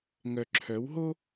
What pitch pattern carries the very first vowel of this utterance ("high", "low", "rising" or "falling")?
low